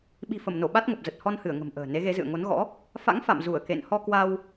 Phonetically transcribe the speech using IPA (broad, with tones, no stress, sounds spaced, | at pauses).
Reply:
ɓ i̤˨˩ f ə˧˩ m n o˧˩ ɓ a˦˥ t̚ ŋ ə˨˩ p̚ z ə˨˩ t̚ h ɔ˧ n h ɨ˧˩ ə̯ ŋ ə̤˨˩ m ʔ ə̤ː˨˩ n e˨˦ ɣ e˨˦ z ɨ̰˧˨ ə̯ ŋ o˨˦ n ɣ ɔ̰˧˥ | f a̰˧˥ ŋ f a̰˧˨ m z u˧˩ ə̯ k ḛ˧˨ n h ɔ˧ k w a˧ w